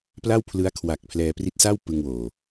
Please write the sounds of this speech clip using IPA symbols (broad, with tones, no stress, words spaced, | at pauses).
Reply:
pla˥˩wpʰlɯ˦˥a̯ kʰwa˨˩k̚ pʰlɛː˧pri˦˥t̚sa˥˩w pɯ˧ŋwoː˨˩